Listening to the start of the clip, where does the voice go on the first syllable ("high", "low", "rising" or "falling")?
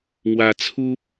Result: low